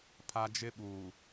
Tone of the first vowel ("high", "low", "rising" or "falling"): high